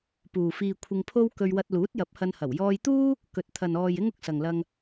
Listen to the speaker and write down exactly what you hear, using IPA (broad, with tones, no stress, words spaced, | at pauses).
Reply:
puː˨fiː˧kʷʰɪ˧ŋpʰo˥w kɵ˧ɥwɐ˧t̚ luː˨˥t̚jɐ˨˥p̚ hɐ˧nhɐ˨˩w jɔː˧jt̪uː˥ | kɵ˨t̚t̪ʰɐ˨n ɔː˨j ɪ˥ŋʊ˧k̚sɐ˨ŋlɐ˧ŋ